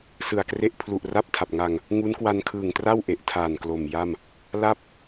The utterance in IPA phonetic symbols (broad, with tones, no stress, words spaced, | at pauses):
sɯ˨˩a̯kre˥˩ʔ pʰlu˨˩ʔra˥˩p̚tʰa˨˩p̚ŋa˧ŋ | ŋu˦˥nkwa˧nkʰɯː˨˩ŋtra˥˩w ʔe˨˩ʔtʰaː˨˩nklo˨˩mja˥˩m | la˥˩p̚